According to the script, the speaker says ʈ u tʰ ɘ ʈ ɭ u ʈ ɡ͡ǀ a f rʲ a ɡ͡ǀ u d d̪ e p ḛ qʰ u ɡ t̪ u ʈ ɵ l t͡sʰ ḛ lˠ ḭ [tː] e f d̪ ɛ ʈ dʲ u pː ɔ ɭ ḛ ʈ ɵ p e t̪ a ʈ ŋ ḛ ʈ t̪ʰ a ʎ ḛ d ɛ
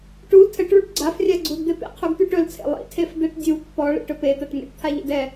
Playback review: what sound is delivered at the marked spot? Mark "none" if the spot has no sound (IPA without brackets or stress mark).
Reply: tʰ